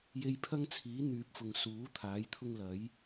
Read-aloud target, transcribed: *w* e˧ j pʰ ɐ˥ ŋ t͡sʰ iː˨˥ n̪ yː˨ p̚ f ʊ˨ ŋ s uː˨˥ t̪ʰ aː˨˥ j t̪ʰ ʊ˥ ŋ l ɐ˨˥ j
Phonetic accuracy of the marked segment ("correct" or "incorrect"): incorrect